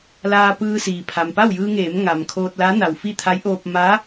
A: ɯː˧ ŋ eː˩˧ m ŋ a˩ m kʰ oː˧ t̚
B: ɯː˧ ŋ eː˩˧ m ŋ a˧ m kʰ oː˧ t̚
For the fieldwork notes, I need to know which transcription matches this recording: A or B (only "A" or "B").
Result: A